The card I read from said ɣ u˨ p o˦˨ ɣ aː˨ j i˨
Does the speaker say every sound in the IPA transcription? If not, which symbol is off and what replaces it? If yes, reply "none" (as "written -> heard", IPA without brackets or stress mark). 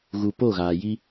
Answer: i˨ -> i˦